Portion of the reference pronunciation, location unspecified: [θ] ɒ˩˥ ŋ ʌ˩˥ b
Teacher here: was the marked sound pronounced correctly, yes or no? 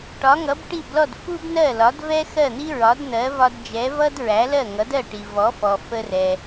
no